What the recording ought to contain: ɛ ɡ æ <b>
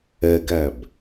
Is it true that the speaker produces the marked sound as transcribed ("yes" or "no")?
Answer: yes